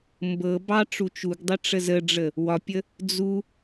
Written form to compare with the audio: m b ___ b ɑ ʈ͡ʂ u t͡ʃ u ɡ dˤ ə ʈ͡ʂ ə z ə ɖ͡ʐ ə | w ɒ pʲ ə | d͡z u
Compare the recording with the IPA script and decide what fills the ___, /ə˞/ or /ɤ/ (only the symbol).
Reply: ɤ